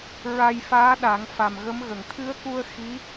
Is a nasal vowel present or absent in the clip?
absent